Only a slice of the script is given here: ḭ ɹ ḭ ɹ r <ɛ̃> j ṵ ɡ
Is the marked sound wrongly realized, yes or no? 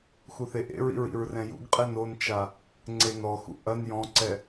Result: no